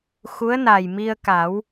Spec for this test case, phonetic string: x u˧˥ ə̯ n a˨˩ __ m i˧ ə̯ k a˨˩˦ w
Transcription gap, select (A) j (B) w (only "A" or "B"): A